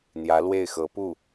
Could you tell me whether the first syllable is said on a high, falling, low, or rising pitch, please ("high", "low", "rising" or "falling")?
rising